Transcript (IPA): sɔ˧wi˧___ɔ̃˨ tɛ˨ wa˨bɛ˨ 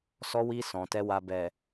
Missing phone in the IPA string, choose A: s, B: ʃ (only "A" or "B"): A